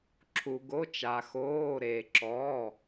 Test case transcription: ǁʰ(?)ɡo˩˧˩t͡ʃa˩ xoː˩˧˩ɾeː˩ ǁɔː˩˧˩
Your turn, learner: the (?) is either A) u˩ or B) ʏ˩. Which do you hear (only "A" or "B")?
A